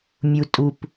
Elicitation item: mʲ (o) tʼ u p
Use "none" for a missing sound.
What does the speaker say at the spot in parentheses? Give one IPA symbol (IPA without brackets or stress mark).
u